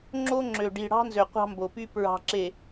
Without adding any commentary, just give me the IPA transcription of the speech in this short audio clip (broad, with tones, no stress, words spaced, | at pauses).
ŋ͡ǁo˦ŋ͡ǁø˨ ɖi˨ɽɑ̤˦nzø˨ qʷɑ̤˦mbo˨py˦ pɹɑ̤˨ǁe˨